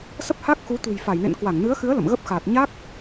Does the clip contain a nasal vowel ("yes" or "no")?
no